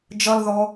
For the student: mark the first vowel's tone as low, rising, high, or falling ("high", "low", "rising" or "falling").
high